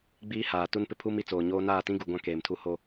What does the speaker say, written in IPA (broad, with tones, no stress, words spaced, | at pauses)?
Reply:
ɡ͡biː˦ haː˨ tu˦npɪ˦pʰuː˦m i˨t͡soː˨ɲoː˦ naː˦˨tĩ˦ɡu˨ɡʷã˦˨ keː˨m tʰu˦ho˦